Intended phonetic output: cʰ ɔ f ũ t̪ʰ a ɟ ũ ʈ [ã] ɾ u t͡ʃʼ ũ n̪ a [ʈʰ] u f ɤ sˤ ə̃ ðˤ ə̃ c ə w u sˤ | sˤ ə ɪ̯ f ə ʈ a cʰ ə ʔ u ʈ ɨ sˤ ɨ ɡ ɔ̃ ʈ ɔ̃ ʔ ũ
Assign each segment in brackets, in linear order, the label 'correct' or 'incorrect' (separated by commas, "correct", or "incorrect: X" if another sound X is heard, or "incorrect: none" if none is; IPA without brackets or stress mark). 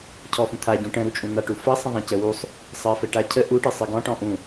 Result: incorrect: ə̃, incorrect: ʈ